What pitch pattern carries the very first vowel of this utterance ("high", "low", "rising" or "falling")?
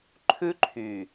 high